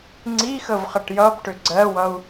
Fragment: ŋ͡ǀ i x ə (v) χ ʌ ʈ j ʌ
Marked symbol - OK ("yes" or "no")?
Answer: yes